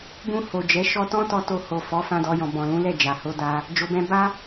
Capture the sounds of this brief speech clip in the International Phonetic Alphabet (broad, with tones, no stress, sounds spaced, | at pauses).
b ũ˧ h o˨ d͡ʒ ɛ˨˦ ʃ ɔ˧ t ɔ̃˦ t ɔ˧ t o˧ h o˨ f ɔ˨˦ f ã˧ d ɔ˧ j ɔ̃˨ b ɔ̃˨ l ũ˨˦ l ɛ˦˨ d͡ʒ a˨ h o˧ d a˧ | d͡ʒ o˧ b ɛ̃˦ b a˦